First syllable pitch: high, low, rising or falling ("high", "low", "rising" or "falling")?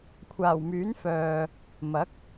low